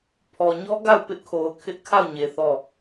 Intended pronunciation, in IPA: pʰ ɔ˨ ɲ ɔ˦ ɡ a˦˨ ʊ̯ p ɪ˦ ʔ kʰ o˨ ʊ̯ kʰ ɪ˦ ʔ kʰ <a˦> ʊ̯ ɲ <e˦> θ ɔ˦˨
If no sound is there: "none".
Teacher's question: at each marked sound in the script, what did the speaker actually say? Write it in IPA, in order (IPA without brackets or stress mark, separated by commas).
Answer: a˦˨, e˨